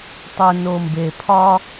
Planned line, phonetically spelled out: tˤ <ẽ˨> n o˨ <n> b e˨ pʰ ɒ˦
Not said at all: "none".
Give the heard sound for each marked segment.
e˨, m

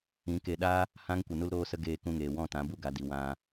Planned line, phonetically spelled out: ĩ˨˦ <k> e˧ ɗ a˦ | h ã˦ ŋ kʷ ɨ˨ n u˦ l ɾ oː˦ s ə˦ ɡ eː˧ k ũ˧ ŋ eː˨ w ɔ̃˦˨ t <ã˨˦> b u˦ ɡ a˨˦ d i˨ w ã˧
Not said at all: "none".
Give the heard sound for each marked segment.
k, ã˨˦

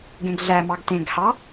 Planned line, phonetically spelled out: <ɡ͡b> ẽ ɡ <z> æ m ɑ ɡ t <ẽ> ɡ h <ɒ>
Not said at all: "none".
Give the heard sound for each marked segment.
ɡ, ɮ, ẽ, ɑ

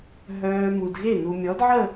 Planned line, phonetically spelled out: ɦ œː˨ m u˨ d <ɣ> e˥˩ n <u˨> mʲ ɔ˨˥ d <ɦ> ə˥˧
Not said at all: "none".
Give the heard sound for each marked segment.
ɣ, u˨, ʕ

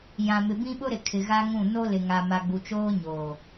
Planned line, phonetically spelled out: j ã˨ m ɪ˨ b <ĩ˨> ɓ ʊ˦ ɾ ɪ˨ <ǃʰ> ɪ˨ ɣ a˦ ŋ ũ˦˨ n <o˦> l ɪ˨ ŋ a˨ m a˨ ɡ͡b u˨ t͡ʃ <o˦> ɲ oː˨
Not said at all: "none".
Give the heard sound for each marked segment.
ĩ˦, kʰ, o˦, oː˦

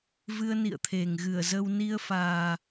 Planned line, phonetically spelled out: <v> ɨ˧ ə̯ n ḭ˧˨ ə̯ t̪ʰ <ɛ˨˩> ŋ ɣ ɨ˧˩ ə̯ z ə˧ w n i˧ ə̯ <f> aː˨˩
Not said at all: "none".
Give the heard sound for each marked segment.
v, e˨˩, f

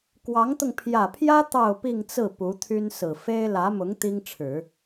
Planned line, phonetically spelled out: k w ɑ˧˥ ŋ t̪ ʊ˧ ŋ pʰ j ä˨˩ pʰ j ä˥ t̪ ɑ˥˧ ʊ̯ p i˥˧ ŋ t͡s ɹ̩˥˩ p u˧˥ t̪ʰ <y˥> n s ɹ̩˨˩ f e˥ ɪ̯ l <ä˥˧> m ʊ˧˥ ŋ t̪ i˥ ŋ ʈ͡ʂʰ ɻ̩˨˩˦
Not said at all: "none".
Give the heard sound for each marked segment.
y˥, ä˧˥

